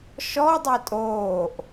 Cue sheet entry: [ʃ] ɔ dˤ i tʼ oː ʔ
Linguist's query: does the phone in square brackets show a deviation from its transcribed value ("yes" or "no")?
no